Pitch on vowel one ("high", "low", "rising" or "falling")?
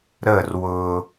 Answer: falling